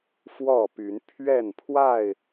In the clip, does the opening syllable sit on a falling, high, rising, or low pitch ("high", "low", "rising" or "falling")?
falling